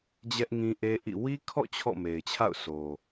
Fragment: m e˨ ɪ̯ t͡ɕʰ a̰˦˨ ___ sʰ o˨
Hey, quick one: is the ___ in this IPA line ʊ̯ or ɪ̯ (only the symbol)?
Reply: ʊ̯